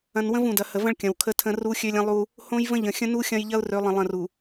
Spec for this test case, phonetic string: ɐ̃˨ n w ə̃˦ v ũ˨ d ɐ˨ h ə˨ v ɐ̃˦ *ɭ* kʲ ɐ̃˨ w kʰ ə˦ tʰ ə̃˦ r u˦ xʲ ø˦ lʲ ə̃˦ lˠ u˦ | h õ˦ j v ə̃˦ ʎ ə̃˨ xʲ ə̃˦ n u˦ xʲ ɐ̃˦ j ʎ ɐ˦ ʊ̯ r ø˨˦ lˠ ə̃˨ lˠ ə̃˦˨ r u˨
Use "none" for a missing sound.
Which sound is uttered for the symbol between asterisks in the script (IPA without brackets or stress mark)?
ɭ